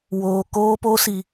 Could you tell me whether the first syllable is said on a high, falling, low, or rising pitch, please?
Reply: low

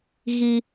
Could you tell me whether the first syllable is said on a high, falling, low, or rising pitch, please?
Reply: high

